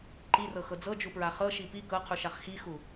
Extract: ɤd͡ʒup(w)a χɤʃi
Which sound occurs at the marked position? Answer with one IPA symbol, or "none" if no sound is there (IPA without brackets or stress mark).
ɹ